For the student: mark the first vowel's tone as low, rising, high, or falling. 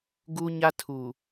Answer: high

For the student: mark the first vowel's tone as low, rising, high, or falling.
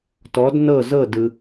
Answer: rising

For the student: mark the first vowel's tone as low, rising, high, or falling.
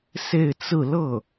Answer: falling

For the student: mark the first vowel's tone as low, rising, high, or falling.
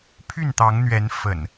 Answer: falling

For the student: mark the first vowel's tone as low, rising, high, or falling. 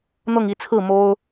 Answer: falling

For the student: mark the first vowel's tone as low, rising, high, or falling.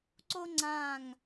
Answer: high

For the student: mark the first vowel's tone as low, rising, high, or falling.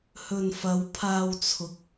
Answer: low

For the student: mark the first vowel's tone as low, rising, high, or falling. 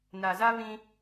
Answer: low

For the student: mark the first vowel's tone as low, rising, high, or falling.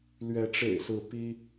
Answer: rising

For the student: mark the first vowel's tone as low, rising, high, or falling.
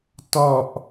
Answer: low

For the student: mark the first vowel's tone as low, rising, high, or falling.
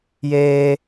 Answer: high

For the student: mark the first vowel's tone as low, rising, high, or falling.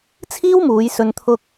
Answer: high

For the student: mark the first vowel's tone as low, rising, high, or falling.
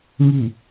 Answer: low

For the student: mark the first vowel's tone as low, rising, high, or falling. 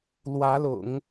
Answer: rising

